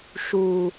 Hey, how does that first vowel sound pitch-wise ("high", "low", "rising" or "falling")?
high